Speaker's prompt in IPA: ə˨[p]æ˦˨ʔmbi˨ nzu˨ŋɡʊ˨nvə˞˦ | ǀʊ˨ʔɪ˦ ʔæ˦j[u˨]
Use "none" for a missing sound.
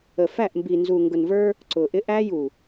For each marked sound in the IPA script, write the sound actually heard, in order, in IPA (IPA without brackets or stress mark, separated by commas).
f, u˨